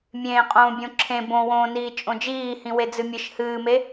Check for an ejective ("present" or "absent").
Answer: present